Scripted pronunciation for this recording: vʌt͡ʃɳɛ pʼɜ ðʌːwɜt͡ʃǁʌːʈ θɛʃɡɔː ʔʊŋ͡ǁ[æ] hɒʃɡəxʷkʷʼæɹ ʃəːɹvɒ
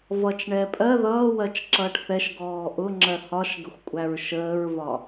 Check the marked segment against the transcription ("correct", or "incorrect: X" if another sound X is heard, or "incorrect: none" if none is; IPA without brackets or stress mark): incorrect: ɜ